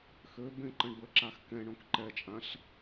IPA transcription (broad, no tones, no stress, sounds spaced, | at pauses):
x ø b ẽ ǃ ə̃ ɳ b ə ǁ a x k ɛ̃ ɳ õ k ǃ ɛ t͡ʃʼ ã ɬ